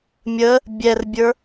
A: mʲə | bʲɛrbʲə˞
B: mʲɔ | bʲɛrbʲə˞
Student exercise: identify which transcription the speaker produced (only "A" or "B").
A